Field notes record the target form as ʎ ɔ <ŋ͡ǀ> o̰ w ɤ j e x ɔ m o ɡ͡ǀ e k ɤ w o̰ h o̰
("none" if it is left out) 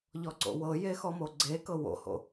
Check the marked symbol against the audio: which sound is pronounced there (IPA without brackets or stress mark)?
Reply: ǀ